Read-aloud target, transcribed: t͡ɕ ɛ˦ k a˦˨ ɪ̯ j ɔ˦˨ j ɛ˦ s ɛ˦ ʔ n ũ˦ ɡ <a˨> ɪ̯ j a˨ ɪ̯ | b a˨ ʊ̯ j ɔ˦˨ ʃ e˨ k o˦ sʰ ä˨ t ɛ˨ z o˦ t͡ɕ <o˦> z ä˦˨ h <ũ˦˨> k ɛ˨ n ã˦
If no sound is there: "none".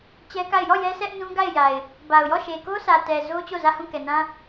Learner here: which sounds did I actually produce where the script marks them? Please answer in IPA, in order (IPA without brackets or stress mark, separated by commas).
a˦˨, o˦˨, ũ˦˨